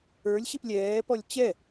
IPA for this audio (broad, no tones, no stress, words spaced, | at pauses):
ə˞lʲ ɕiplʲɛːpɔlʲ t͡ɕɛ